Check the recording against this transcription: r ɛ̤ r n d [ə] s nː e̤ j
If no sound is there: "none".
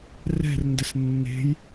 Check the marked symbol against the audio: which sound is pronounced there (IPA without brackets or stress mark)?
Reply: ə